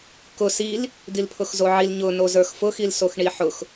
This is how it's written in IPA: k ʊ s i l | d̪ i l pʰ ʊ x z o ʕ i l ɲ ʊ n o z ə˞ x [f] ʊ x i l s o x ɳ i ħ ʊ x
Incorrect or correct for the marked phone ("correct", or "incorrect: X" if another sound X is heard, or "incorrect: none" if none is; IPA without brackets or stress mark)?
correct